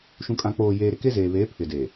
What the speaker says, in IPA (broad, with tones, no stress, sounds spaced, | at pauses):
ʃ ũ˨ kʼ ã˨ k͡p oː˨ j eː˨ ɾ ɪ˨ k e˦ z eː˨ β eː˨˦ pʰ ɪ˨ d eː˨